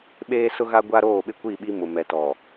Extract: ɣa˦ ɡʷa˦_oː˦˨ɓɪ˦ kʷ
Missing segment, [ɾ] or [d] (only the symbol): ɾ